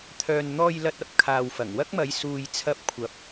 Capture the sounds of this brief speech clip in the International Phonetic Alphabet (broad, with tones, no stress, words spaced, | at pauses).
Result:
t̪ʰœː˨n n̪ɔː˨jlɐ˨t̚ ɐ˧p̚ kʰaː˨wfɐ˨˩ŋ wɐ˥k̚mɐ˨˧j suː˨jt͡sʰɐ˧p̚kʷʰɐ˨˥p̚